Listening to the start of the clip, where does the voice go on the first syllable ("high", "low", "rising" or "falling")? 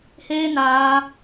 high